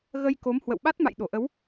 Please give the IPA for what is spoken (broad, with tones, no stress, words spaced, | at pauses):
ɣə˧jko˨˦m hwə̰˧˨wɓa˦˥t̚ma̰˧˨j ɗo˧˩ʔə˨˦w